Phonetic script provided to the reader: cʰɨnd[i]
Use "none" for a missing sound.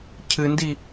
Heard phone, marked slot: i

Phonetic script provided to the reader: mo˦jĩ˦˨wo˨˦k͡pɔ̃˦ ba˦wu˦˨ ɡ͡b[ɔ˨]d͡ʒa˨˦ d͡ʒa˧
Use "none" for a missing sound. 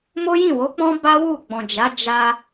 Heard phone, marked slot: ɔ̃˨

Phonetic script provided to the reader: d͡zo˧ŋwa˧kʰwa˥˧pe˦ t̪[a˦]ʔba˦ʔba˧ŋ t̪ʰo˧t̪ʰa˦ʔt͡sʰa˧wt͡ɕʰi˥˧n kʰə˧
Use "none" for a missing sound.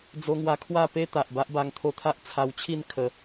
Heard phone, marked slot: a˨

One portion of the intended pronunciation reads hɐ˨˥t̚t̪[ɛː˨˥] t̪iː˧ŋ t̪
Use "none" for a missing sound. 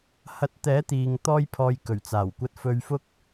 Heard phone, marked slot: ɛː˨˥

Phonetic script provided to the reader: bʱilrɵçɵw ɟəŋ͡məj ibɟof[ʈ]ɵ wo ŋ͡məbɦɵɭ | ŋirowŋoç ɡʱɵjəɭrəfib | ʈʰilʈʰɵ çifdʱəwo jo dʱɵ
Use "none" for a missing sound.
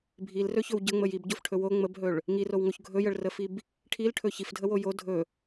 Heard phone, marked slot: ʈʰ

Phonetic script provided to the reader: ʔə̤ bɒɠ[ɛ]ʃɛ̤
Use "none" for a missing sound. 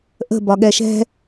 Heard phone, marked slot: ɛ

